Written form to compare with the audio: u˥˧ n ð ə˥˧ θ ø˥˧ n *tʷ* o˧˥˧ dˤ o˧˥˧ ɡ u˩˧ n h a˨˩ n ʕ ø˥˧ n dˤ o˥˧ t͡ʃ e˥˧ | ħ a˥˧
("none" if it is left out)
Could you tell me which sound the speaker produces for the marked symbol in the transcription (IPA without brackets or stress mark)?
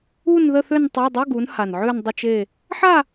tˤ